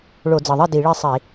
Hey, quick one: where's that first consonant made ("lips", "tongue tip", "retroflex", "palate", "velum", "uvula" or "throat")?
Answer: retroflex